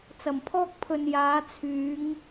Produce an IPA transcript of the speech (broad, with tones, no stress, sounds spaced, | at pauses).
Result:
t͡s ɐ˨˩ m pʰ ɔː˥ k̚ pʰ ɵ˨ n j aː˨˧ t͡sʰ yː˨˧ ŋ